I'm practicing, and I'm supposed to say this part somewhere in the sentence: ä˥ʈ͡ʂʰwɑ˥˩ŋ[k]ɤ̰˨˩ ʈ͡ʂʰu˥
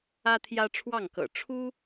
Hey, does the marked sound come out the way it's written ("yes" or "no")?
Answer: yes